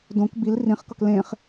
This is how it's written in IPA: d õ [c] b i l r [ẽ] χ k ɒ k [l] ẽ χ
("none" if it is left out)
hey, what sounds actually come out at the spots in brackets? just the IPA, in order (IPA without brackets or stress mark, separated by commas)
k, ĩ, l